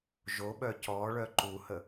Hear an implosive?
yes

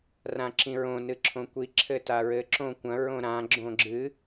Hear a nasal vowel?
yes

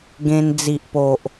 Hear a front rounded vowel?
no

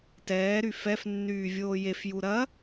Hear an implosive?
no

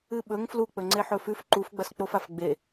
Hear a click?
yes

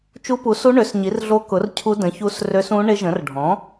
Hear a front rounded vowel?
yes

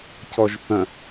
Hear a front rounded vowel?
yes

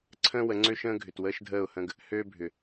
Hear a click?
yes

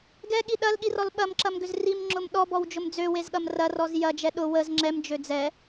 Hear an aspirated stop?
no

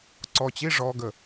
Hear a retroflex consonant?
yes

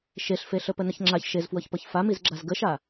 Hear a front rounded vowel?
no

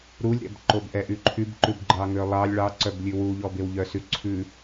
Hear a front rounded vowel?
yes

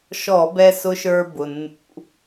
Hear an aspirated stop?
no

